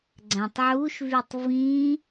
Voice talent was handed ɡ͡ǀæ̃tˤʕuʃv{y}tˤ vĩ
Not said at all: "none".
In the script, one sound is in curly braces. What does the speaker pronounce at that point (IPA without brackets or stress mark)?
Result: y